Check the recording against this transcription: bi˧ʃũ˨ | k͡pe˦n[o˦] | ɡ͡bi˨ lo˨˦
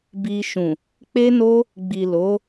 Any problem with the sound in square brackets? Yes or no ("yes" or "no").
no